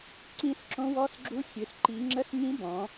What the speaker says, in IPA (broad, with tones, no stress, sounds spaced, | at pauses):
ǀ ĩ˧˥ s ǁ õ˧˥ w ɔ˧˥ s ɡ͡ǁ u˧˥ xʲ ø˩˧ s ǃ i˩˧ ŋ͡ǁ ə˧˥ s ŋ ĩ˧˥ b ɔ̃˩˧